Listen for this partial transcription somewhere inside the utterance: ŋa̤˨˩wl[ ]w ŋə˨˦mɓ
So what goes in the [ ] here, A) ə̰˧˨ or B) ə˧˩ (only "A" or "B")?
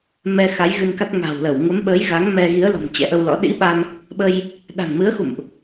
B